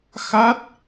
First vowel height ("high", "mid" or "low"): low